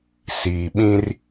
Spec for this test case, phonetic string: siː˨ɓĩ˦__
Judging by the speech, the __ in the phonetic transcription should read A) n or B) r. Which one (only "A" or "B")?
B